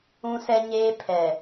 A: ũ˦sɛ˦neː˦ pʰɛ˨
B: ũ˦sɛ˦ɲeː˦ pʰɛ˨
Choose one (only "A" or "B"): B